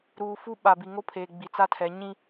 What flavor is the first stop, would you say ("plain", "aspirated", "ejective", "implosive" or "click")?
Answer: implosive